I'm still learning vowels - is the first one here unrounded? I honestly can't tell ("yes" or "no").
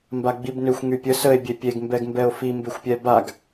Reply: yes